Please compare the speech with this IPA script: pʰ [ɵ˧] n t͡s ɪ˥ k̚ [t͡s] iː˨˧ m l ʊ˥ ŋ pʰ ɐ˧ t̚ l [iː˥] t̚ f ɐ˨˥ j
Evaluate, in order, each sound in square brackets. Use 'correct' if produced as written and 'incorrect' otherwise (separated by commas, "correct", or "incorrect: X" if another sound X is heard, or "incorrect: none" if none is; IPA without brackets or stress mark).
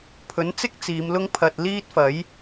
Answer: incorrect: ɵ˨˥, correct, correct